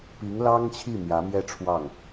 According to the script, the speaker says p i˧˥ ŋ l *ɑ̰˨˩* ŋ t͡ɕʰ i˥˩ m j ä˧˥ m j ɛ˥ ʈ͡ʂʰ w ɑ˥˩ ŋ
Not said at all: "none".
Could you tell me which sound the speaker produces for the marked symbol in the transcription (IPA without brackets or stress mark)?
ɑ˥